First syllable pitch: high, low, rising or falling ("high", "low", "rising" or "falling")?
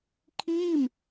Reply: falling